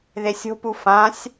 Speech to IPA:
ðesʲo̤pu fãsʲ

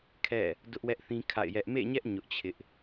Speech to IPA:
kʰɛ̰˦˨ | dʊ˦ʔwɛ˦ʔθĩ˦ kʰa̰˦˨ɪ̯jɛ˦ʔ mḛ˦˨ɲɛ˦ʔ ɲʊ˦ʔt͡ɕʰɪ˦ʔ

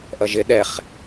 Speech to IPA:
ʔʌʒɪ ɗɛχ

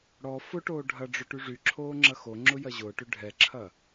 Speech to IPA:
ɽɔ fʊʈoː ɖʱɐɖ͡ʐʏ ʈyʐyǁʰoː ŋ͡ǁɐxoŋ͡ǁʊ jɐʑʊːʈʏ ɖʱɛǁʰɐ

